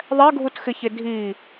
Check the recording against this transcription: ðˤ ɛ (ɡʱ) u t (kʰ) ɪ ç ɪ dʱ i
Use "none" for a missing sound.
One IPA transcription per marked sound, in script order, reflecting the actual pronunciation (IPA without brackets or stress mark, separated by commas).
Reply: ɡʱ, x